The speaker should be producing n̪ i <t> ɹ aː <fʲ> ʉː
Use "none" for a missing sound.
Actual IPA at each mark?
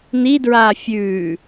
d, fʲ

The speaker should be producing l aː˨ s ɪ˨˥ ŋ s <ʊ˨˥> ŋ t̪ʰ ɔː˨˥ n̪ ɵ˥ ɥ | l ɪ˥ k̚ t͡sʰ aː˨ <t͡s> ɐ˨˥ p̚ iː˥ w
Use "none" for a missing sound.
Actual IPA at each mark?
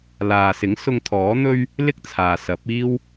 ʊ˧, s

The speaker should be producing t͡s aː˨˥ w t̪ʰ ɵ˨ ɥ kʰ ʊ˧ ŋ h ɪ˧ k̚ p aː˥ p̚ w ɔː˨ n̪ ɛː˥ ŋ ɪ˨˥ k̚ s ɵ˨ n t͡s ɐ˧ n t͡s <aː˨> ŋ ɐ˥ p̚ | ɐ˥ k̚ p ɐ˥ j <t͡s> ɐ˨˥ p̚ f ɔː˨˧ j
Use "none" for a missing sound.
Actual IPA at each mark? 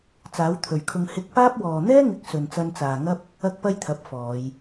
aː˨, t̪ʰ

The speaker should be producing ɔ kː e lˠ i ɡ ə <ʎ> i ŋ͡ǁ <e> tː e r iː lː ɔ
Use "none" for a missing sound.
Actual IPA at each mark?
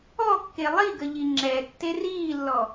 ʎ, ɛ

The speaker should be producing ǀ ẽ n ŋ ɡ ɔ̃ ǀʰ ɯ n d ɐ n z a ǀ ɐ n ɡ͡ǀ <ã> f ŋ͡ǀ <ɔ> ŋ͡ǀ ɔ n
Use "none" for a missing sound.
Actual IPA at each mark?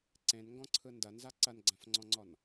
ã, ɔ̃

